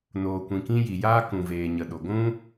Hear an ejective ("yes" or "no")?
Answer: no